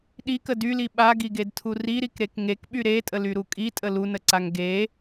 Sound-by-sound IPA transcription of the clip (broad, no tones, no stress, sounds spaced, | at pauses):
ɗ i k ə d y l i ɓ a ɡ i ɡ e d tʰ u r i ɾ i k ɾ e k ŋ e k ɓ y ɾ e tʼ ə l y ɾ u kʼ i tʼ ə l u n ə ǀ a ŋ ɡ e